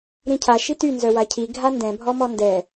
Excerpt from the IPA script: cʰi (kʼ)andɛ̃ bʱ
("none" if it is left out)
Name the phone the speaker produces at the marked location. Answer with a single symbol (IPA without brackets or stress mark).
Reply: ɡʱ